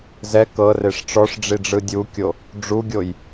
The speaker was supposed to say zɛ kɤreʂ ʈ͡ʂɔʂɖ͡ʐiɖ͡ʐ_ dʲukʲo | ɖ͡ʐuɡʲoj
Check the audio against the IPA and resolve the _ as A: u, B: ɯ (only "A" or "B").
B